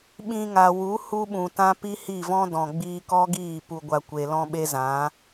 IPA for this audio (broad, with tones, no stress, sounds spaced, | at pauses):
ɓ ĩ˧ ŋ a˨ w u˨˦ h u˦ ɓ ũ˨ t ã˦ p i˦ h i˦˨ v ɔ̃˦ d ɔ̃˨ ɡ͡b iː˧ k ɔ˦ ɡ iː˦˨ p u˧ ɡʷ a˧ kʷ e˨ l ɔ̃˧ ɓ e˦ z ã˨˦